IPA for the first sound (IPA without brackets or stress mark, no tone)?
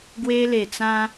ɡ